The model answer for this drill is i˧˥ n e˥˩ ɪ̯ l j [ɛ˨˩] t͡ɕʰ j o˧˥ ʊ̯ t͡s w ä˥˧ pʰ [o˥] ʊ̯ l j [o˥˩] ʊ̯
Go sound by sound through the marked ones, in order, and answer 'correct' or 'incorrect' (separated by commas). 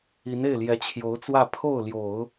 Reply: incorrect, incorrect, incorrect